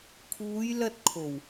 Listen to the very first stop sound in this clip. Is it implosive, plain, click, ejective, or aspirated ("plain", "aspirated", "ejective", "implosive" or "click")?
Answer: aspirated